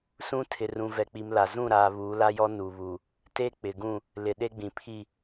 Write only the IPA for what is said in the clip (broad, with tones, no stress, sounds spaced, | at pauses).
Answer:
s ũ˦ tʰ ɪ˨ r ũ˨ v ɛ˨ k͡p i˨ m l a˨ z ũ˦˨ ɾ aː˨ β uː˨˦ l a˦ j ɔ˦ n uː˨ β uː˨ | t e˦ k͡p ɪ˨ ɡ ũ˦˨ | l ɪ˨ ɗ e˦ ɡ͡b ĩ˨ pʰ i˦˨